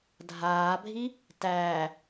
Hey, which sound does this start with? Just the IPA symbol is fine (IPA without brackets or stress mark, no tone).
dʱ